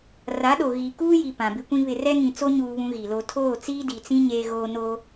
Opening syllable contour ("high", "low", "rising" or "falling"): rising